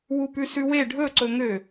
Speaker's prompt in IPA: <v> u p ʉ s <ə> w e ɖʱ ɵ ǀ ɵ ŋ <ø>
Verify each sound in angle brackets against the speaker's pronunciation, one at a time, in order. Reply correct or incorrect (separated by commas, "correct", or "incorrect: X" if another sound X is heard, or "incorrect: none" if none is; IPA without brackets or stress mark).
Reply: incorrect: w, incorrect: ʉ, correct